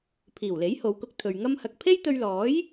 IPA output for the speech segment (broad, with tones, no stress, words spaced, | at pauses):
pʰiː˨˩wle˨˥jho˨˧wkʊ˧k̚ t̪ʰɵ˨ɥ ŋɐ˧mhɐ˨k̚ pʰe˥jt̪ɵ˧ɥlɔː˨˥j